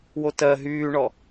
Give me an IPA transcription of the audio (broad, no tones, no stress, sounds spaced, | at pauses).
w o t ɜ ɦ yː ɳ ɔ